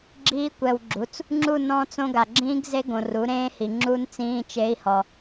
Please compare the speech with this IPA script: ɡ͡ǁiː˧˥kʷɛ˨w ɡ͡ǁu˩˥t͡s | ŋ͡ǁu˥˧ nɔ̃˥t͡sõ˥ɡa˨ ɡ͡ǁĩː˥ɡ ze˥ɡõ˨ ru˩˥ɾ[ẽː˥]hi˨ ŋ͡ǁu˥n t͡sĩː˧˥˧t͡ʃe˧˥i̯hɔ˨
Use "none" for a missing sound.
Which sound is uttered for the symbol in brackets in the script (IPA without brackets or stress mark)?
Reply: ẽː˥